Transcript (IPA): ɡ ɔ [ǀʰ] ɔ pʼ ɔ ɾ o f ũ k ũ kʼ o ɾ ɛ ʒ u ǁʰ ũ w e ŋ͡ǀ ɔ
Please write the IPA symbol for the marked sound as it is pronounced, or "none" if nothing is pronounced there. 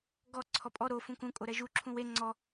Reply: ǀʰ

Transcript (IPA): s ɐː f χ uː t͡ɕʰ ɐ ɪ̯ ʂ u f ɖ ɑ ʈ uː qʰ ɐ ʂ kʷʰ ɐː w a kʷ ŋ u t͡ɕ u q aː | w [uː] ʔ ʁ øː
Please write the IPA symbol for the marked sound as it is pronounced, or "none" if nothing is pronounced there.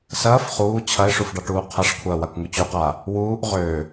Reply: uː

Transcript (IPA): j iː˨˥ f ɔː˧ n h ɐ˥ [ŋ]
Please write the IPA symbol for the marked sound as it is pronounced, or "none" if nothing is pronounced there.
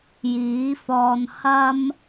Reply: m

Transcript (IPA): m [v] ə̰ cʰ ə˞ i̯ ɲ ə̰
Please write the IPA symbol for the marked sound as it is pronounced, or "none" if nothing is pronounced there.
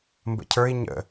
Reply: b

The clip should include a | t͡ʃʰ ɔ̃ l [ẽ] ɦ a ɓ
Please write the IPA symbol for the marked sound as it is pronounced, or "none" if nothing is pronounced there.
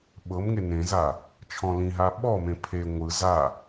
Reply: ĩ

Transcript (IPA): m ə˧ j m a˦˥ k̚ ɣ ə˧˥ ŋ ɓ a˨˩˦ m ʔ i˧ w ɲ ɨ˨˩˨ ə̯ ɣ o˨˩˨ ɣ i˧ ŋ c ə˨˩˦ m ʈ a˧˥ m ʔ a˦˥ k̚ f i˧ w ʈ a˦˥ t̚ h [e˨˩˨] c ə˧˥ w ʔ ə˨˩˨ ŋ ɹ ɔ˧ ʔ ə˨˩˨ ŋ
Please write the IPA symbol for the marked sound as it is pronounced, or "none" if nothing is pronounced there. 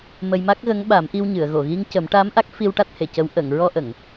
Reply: e˨˩˨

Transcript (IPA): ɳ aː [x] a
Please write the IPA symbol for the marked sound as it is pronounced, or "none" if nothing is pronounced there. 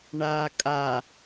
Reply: kʼ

